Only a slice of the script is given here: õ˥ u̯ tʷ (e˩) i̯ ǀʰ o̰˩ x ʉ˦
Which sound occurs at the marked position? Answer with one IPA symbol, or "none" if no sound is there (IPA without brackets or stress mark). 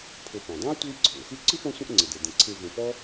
e˦